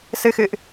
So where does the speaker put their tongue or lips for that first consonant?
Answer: tongue tip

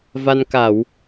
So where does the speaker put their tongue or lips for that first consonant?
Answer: lips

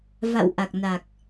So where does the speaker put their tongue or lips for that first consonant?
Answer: lips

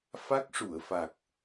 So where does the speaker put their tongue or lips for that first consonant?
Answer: lips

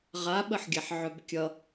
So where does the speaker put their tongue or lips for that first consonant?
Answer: uvula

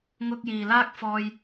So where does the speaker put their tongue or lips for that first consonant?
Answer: velum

